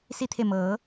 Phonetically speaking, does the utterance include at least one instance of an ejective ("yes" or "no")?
no